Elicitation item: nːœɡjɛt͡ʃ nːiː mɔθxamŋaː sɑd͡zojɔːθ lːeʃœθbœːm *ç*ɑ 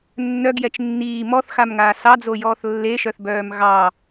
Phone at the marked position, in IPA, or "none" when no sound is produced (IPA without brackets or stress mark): ɣ